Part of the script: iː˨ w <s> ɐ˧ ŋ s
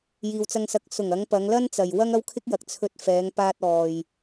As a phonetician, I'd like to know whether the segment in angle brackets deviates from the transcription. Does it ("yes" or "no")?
yes